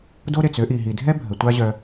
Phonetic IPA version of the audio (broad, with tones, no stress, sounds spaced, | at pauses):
d o˥ ɾ e˩ t͡s ø˥ ʔ i˩ ɦ i˩ dʱ ɛ˥ bʱ ə˩ tʷ a˥ ʑ œ˨